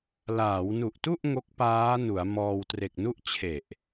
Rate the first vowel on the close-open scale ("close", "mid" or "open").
open